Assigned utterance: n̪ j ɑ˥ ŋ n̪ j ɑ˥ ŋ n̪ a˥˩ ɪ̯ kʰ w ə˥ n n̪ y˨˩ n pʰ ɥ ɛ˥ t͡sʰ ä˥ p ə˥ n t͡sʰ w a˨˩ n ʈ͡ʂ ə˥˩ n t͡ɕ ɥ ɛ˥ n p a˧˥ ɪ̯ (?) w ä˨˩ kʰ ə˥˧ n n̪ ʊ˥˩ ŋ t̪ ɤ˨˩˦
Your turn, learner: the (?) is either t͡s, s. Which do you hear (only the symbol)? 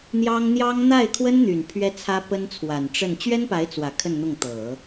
t͡s